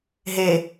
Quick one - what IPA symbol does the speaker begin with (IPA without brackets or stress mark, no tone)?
ɦ